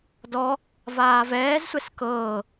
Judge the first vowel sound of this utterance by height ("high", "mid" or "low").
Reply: mid